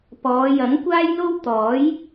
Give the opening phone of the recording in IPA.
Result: p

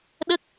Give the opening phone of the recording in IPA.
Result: ɗ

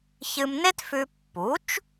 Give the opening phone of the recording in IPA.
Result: ç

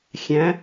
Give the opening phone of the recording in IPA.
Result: xʲ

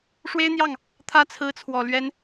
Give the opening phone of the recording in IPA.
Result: ʂ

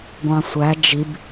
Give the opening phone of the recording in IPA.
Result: ɡʷ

